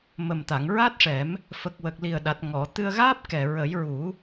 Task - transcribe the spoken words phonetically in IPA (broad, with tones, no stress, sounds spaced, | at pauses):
m ə˨˩ m t̪ a˨˩˨ ŋ ɹ a˦˥ t̚ ʂ ɛ˨˩˦ m | f ə˨˩ k̚ w ə˨˩ k̚ l i˨˩ ə̯ ɗ a˨˩ t̚ ŋ ɔ˨˩˨ t̪ ɨ˧ ə̯ ɣ aː˦˥ p̚ k ɛ˨˩ ɹ ə˨˩˦ j ɹ u˨˩˦